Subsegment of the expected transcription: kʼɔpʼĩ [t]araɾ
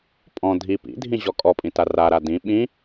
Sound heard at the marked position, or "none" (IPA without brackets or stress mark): t